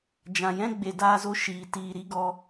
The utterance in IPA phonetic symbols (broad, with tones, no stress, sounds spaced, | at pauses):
d͡ʒ ã˨ j ɛ̃˦ ɡ͡b e˨ d aː˧ z o˧ ʃ iː˨ t iː˨ ɾ i˦ ɡ ɔ˧